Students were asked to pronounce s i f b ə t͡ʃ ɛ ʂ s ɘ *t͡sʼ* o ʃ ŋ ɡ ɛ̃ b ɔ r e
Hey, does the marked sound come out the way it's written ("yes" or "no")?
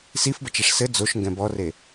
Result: no